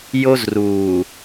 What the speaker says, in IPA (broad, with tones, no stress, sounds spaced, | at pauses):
j o˦ z r uː˨